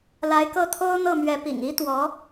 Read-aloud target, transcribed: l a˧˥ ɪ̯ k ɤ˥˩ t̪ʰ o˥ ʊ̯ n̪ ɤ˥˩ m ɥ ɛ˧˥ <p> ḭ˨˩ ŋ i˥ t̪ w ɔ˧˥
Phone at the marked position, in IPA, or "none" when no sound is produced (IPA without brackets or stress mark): p